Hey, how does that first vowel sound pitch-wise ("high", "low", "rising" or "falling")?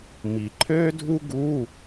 low